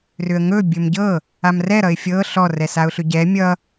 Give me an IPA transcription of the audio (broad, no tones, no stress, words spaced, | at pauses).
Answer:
rʏə̯ŋɵ bʲɵmɟɤ | amrɛ ɾʌɪ̯fʲɤ ɬɔrɛ saʊ̯ɬʏɟɛ mʲʌ